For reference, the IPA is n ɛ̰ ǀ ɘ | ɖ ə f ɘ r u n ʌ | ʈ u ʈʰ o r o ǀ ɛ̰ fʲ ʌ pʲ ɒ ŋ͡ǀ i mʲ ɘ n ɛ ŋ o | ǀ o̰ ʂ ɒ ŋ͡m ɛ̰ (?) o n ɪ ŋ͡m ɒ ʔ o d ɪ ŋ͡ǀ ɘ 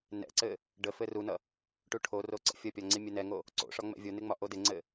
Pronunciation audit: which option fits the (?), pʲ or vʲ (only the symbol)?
vʲ